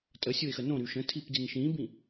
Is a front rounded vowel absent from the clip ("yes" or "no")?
no